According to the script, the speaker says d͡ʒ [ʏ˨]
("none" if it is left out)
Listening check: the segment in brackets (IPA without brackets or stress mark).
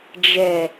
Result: ɛ˨